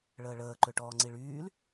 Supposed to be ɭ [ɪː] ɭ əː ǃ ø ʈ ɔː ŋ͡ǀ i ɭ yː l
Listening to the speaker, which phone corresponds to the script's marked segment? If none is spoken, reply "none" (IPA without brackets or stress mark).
əː